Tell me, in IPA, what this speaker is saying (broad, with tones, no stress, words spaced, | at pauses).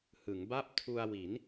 hɯ˩˦ŋba˥˩p̚ tʰu˧a̯wi˩˦n